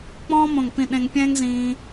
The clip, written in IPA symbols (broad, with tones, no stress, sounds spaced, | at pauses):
k͡p ɔ̃ː˥ m õ˦˨ ŋ p ĩ˦˨ ɗ ẽ˥ ŋ pʲ ɛ̃ː˥ ŋ z ĩː˥